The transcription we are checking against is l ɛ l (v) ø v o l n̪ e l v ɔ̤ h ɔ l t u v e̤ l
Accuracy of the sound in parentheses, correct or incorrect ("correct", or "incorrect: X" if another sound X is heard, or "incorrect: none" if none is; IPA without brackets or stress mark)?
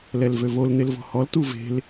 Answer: correct